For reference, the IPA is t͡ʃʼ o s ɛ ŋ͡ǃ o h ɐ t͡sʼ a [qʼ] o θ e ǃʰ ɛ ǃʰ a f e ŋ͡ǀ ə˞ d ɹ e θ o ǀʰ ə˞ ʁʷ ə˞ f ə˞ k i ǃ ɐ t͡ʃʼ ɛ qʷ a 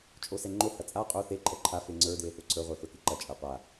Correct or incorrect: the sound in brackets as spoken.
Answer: correct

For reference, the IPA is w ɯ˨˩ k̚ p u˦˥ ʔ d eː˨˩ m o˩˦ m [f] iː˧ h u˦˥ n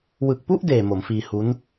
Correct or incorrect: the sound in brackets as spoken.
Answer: correct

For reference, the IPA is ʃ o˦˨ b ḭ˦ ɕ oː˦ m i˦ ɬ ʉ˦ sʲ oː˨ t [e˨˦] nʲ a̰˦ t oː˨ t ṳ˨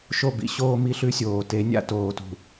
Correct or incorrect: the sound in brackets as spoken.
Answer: correct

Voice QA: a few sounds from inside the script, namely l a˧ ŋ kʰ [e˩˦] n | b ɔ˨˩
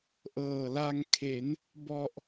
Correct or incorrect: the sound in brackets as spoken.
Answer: correct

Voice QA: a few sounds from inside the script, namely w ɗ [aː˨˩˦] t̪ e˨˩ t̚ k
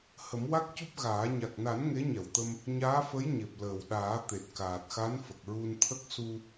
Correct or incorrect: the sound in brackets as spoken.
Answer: correct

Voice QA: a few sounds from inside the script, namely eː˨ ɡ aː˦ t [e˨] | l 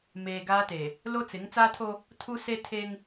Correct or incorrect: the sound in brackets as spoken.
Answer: correct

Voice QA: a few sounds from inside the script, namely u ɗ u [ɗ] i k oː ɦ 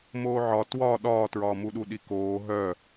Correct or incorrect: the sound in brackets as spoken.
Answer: correct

